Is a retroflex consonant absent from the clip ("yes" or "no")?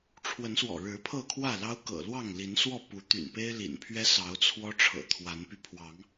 no